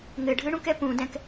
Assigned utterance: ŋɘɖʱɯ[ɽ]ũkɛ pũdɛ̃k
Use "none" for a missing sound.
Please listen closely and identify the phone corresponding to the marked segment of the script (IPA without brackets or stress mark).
ɽ